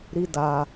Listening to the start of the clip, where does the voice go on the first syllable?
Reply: high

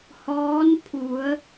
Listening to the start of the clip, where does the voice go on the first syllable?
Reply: rising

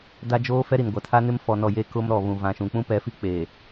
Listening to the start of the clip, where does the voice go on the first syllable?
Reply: high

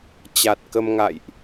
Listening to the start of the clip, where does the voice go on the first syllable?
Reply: low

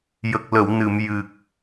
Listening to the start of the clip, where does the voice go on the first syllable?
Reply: low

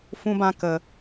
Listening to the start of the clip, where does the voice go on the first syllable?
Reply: high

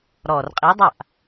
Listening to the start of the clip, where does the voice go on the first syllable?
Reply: low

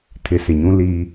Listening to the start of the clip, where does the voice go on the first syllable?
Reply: rising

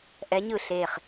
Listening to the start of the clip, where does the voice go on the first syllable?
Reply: rising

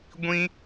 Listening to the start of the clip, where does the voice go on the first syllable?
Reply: high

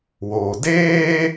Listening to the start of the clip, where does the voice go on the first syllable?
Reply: low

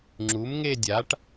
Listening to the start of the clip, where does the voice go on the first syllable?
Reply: rising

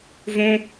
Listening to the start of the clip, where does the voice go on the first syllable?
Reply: high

